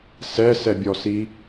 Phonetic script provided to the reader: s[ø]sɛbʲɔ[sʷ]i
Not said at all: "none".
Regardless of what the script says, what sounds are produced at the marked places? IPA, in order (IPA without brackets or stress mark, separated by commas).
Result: ɛ, s